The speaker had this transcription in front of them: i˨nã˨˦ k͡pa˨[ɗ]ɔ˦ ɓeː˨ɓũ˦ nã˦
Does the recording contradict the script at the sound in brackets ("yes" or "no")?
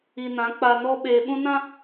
yes